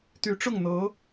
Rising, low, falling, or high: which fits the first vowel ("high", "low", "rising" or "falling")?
rising